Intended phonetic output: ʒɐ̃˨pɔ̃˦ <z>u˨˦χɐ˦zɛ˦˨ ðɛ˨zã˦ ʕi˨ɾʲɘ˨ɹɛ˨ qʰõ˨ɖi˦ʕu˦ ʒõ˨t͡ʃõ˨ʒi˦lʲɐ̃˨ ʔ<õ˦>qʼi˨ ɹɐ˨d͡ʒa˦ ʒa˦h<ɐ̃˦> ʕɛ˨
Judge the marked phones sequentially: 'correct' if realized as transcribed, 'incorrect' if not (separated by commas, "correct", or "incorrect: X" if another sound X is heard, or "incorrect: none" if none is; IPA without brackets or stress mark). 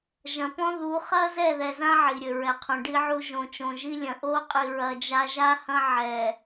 incorrect: ð, incorrect: o˦, correct